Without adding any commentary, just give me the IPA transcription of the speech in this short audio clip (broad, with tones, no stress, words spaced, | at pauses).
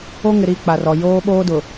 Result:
o˦ŋɪ˨ɾi˦˨ k͡pa˨rɔ˨ joː˦ɓoː˦dʊ˨